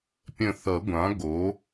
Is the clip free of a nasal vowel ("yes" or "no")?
no